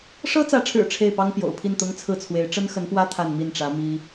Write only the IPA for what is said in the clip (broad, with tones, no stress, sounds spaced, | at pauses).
ʂ ɤ˥ t͡s ä˧˥ ʈ͡ʂʰ ɻ̩˨˩ ʈ͡ʂʰ e˥˩ ɪ̯ p ɑ˥ ŋ p j o̰˨˩ ʊ̯ pʰ i˥˩ n t̪ ʊ˥ ŋ t͡sʰ ɹ̩˥˩ t͡sʰ w e˧˥ ɪ̯ ʈ͡ʂ ə˥ n x ə˧˥ n p w ä˥ t̪ʰ a˥˧ n m i˥˩ n ʈ͡ʂ ä˧˥ m i˥